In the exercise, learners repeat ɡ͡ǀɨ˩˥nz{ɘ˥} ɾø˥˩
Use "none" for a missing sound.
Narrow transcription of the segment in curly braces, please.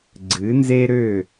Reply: e˥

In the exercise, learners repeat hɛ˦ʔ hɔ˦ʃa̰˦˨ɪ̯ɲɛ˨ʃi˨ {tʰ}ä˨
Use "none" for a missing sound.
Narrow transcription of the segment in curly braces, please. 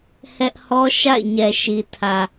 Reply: tʰ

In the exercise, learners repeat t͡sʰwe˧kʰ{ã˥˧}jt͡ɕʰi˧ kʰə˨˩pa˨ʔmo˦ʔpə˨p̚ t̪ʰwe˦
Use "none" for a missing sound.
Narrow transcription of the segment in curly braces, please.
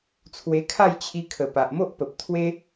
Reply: a˥˧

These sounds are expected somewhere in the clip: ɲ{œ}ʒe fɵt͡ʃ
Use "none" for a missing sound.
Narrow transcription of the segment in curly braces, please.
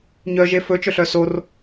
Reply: œ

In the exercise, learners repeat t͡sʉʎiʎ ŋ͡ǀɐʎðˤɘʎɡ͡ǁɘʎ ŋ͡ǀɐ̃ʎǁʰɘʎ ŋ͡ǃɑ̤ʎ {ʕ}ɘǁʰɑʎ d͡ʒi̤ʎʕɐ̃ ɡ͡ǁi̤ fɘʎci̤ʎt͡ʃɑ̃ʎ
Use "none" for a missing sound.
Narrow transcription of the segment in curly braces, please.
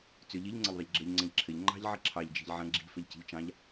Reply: ʕ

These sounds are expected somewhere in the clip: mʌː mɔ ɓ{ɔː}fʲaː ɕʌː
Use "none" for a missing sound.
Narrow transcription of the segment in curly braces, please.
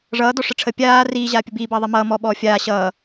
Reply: ɔː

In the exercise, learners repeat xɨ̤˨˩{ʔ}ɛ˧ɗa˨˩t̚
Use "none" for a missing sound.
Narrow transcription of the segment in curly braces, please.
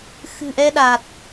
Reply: ʔ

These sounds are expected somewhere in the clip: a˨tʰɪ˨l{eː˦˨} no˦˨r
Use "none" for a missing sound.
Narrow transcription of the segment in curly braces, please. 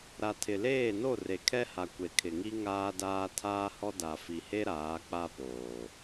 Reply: eː˦˨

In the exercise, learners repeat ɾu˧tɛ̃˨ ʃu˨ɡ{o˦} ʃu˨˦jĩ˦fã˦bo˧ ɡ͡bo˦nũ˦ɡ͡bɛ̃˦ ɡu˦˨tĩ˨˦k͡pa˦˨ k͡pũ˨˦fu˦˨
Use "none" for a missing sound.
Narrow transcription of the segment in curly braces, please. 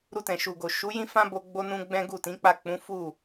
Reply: o˨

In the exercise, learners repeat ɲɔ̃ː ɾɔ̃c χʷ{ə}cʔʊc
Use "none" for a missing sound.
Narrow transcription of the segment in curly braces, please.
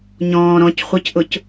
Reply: ə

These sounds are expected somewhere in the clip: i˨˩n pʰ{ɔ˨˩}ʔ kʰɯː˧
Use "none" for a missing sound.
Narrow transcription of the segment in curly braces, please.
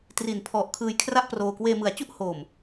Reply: ɔ˨˩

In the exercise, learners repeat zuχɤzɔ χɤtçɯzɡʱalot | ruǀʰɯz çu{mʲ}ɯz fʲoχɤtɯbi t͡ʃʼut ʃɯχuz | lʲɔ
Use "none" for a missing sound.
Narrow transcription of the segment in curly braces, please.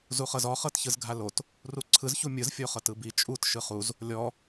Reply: mʲ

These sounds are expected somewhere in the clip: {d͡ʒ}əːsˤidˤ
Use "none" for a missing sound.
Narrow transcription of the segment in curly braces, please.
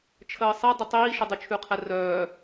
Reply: t͡ʃʰ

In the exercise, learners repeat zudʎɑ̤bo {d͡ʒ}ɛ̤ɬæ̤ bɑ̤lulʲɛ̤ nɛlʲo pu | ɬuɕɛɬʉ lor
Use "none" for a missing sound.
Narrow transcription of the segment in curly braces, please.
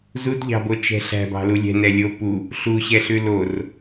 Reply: t͡ʃ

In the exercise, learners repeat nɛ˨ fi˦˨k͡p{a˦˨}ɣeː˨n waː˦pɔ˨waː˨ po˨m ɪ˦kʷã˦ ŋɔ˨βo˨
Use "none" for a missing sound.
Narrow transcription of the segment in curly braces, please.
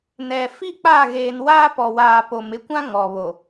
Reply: a˦˨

